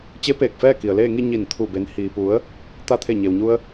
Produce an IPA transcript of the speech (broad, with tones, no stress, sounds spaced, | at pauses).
t͡ɕ e˧˥ p eː˧˩ k̚ f ɛː˥˨ k i˩ ə̯ l eː˥˨ ŋ i˥˨ ɲ i˧˩ n t̪ʰ u˧˩ b e˩˧ n h iː˩ p u˩˧ ə̯ | t̪ a˧ t̪ʰ e˧˩ ɲ e˩ w ɲ u˧ ə̯